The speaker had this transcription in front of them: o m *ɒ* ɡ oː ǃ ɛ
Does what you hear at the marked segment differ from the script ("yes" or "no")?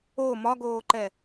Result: no